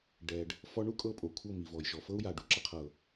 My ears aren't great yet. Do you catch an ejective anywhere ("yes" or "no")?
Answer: yes